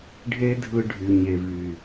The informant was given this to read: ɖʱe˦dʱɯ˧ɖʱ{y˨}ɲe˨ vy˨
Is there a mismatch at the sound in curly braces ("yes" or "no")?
no